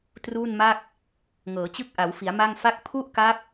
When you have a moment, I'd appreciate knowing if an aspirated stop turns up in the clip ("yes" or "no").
yes